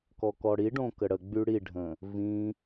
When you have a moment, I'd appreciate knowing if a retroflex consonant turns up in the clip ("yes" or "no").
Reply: yes